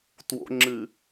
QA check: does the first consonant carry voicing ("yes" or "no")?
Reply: no